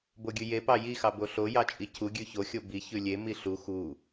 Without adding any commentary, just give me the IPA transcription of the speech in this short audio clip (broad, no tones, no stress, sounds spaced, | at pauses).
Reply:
b o ɡʲ ʉ j e p ɑ j i x ɑ b o ɬ o j ɑ t͡ʃʼ i cʰ u ɡʲ ʉ ç o xʲ o b i ç ʉ lʲ e m i ɬ u x u